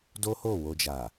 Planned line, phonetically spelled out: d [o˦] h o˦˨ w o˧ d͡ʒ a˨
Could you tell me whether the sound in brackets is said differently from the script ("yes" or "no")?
no